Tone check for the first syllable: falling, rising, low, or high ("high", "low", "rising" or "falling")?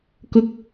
high